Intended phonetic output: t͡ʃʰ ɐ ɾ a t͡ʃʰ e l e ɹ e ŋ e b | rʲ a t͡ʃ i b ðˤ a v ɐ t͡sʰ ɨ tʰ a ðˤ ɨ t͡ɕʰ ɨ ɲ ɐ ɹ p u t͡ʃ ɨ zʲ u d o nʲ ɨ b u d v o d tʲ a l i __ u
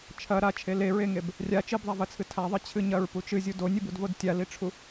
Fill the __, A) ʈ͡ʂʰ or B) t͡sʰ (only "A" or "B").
A